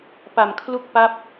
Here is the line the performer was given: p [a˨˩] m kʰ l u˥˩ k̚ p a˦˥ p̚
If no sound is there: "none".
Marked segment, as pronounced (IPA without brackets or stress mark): a˨˩